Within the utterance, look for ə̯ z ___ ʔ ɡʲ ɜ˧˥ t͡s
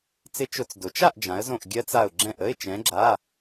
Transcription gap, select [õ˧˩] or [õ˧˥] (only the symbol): õ˧˩